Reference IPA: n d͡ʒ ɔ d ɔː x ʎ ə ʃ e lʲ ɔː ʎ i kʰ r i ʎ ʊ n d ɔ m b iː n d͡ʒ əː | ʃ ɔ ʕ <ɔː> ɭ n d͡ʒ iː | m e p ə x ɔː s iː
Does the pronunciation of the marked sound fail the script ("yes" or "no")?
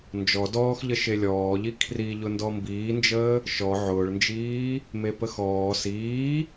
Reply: yes